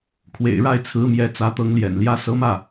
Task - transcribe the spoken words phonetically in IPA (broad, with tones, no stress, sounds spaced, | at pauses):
kʰ w ḛ˨˩ ɪ̯ ɻ a˥˩ ɪ̯ t͡sʰ ɹ̩˧˥ m j ɛ˧˥ t͡s ä˧˥ t̪ ɤ˧˥ ŋ l j ɛ̰˨˩ n l j ä˧˥ s ɤ˧˥ m ä˥˩